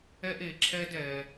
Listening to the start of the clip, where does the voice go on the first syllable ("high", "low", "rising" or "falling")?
high